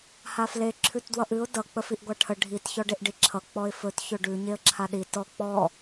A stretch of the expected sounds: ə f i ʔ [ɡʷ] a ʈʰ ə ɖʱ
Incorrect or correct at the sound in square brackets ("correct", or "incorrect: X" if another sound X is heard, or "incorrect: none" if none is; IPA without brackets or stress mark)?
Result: correct